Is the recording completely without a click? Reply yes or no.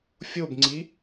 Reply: no